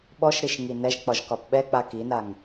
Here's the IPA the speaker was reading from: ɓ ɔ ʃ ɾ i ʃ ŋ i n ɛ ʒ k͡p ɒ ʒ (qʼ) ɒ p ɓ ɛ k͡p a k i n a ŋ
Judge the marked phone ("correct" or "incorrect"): incorrect